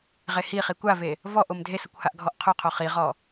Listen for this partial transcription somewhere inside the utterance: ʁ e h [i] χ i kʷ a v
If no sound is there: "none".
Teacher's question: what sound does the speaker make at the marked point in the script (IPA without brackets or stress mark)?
i